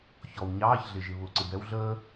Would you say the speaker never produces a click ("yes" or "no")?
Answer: no